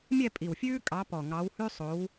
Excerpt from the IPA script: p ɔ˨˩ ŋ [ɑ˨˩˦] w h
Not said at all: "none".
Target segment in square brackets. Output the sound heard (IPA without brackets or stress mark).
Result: ɑ˨˦